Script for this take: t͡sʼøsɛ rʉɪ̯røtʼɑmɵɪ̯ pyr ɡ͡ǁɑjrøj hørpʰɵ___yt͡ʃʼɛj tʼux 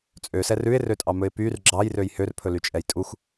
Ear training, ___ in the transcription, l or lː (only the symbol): l